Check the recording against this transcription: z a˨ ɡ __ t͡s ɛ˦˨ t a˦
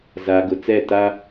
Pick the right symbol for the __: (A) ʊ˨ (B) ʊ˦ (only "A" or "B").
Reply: A